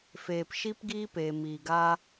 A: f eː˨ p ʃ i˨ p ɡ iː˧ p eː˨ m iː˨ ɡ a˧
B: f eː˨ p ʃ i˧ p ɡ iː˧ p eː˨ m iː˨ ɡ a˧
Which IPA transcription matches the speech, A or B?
B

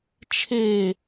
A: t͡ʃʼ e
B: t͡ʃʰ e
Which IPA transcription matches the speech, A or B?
B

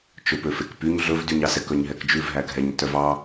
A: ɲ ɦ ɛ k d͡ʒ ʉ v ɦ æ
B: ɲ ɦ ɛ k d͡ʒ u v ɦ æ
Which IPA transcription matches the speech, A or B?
A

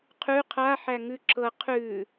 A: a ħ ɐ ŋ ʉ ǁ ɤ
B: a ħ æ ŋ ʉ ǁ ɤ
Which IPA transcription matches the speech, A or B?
B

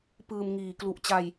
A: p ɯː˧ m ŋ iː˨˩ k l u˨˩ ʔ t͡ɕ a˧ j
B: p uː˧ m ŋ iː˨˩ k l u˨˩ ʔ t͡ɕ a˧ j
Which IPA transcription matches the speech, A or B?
A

